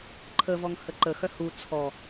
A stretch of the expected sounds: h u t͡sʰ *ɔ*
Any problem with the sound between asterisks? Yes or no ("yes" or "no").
no